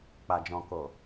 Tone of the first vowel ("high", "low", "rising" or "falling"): low